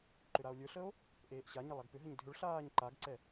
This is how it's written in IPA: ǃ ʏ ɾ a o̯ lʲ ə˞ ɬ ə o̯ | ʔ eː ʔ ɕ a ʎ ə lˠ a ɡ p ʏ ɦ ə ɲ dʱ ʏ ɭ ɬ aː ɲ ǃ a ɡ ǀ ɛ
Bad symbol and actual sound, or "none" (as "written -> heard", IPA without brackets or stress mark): ʎ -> ɲ